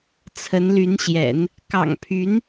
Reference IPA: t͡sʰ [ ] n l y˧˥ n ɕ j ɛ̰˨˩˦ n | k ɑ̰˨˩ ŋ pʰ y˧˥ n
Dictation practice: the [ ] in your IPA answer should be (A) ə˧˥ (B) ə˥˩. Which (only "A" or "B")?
A